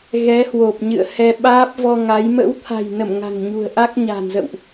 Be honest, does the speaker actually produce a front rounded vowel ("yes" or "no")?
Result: no